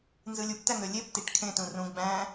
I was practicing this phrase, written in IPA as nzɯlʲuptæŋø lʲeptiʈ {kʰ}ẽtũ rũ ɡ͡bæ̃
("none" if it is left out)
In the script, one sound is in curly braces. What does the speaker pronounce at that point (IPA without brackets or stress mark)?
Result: kʰ